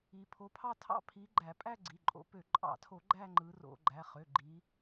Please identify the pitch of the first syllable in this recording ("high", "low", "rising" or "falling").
rising